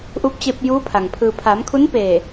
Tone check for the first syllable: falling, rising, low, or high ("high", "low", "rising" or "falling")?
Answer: rising